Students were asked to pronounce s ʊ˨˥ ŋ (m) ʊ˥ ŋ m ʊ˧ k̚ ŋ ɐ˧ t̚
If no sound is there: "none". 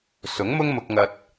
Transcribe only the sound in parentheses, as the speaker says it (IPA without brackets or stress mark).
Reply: m